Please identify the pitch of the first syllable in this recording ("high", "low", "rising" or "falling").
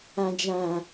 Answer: low